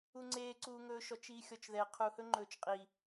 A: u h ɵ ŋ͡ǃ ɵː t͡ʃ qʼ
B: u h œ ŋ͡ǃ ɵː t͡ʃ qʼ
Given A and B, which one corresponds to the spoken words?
A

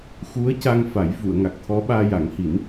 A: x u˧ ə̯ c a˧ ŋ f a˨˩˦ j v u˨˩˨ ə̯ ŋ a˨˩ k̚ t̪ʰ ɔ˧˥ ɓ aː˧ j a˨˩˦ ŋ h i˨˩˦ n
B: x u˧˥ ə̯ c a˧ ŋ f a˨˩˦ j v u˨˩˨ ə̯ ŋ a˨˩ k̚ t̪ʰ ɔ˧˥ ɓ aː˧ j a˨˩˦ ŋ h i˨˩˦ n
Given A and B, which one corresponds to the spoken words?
B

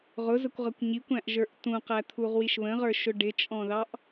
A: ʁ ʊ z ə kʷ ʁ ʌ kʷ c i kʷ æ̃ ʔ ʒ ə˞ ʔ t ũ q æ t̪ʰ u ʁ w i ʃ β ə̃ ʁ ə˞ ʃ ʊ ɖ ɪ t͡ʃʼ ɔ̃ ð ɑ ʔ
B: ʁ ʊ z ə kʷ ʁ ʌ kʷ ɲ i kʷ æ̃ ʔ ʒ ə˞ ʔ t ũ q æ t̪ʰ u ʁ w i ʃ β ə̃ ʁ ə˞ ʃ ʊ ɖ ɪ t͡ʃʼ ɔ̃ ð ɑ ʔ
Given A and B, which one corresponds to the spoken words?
B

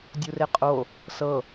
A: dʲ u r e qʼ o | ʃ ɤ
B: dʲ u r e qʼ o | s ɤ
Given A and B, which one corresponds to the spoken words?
B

